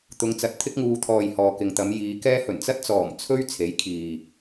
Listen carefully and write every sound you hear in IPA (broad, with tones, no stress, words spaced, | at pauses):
t̪ʊ˨˧ŋt͡sɐ˨t̚ t̪ʰɪ˥k̚ŋuː˨˧t̪ʰɔː˨j hɔː˨kɪ˨ŋt̪ɐ˨˧m jiː˨˧kɛː˥ hɵ˨˩nt͡sɐ˥t̚t͡sɔː˨˩m t͡sʰɵ˥ɥ t͡sʰe˨˥jkʰiː˨